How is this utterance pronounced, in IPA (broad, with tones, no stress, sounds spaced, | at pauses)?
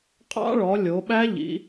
qʼ ɑ̰˦˥ ɭ ɔ˩˧ lʲ o˩˧ ɓ æ˦˥ ʎ ḭ˩˧